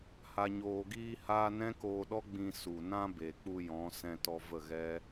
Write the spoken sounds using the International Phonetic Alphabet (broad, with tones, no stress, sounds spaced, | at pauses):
h a˨ ɲ oː˨ ɡ iː˧ h aː˧ n ɛ̃˦ k oː˧ ɗ ɔ˦ ɡ͡b ĩ˧ s u˨ n ã˦ b e˨ k͡p u˧ j ɔ̃˨˦ s ɛ̃˧ t ɔ˧ v ə˦˨ ɣ ɛ˦